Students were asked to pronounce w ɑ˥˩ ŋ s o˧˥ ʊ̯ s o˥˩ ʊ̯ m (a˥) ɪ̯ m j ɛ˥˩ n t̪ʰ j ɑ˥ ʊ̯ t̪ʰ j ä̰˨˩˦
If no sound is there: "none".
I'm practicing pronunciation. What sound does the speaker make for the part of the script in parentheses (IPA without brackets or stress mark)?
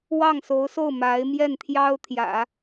a˧˥